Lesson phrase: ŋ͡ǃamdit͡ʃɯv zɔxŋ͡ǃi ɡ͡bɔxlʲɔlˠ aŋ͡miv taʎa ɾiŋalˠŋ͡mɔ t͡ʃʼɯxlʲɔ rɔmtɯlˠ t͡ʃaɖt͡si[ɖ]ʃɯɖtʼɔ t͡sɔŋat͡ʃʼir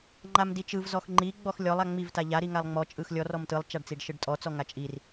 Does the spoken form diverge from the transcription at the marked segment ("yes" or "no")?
no